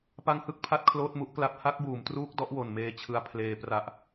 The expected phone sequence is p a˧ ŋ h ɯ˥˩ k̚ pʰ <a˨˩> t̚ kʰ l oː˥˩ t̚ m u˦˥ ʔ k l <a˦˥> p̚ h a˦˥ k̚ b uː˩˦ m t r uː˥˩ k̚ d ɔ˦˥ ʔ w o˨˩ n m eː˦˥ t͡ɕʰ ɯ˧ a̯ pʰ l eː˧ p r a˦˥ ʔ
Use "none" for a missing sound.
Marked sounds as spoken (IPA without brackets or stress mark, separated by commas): a˥˩, a˥˩